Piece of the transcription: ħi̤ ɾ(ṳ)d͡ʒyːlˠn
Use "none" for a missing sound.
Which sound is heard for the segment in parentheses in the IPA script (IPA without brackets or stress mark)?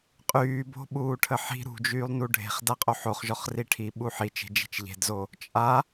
ṳ